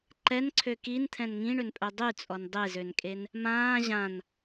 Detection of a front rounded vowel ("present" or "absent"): present